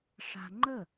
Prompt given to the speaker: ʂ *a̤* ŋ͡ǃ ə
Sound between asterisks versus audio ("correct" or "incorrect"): correct